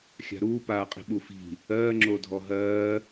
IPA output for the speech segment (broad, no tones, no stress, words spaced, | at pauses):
xʲa̤ɾuː paːqʼi̤ɓufi̤ | ɜː ŋ͡ǁodʱɔɦɜː